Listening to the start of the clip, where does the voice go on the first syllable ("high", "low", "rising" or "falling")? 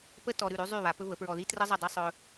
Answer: high